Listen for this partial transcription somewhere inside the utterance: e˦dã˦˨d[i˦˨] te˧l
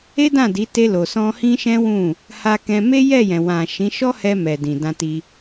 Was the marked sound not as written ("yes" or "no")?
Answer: yes